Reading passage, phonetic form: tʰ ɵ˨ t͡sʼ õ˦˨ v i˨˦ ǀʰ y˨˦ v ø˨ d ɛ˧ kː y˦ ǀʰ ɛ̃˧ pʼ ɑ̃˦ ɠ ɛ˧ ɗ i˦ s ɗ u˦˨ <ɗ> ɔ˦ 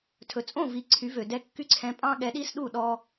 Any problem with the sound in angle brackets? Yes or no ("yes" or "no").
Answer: no